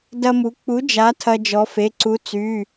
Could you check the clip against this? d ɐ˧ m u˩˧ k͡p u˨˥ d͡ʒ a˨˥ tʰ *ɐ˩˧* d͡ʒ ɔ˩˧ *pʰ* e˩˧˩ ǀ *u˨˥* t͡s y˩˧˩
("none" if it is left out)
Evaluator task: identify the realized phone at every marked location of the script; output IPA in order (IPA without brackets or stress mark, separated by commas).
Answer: ɐ˧, f, u˨˥